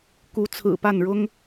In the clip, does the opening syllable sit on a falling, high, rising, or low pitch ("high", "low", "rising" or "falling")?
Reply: rising